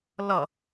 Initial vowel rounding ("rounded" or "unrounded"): unrounded